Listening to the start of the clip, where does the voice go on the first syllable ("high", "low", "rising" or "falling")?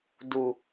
low